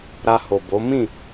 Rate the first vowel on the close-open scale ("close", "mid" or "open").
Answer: open